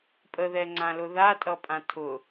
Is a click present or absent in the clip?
present